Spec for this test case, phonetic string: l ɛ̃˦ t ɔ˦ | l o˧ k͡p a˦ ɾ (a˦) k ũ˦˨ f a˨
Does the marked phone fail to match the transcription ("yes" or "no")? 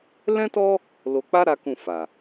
no